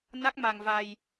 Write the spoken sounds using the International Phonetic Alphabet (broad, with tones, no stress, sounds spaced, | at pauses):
n a˦˥ k̚ m a˧ ŋ v a˧ j